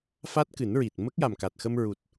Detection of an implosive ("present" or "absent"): absent